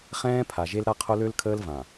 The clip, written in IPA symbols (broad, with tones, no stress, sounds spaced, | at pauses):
χ ɛ̃ː˦ pʰ a˨ ʒ e˦ l ɾ a˦ qʰ o˦ l ø˦ l kʰ əː˦ l v ã˨